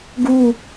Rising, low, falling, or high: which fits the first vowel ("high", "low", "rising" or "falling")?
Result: falling